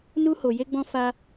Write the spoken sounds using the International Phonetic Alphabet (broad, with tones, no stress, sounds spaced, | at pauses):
n u˦ h o˧ j e˦ ɡ͡b ɔ̃˦ f a˦